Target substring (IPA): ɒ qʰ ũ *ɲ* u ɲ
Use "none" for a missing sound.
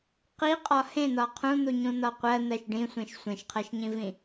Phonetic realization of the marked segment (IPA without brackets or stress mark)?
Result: n̪